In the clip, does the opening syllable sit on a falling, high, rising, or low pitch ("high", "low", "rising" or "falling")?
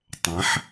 rising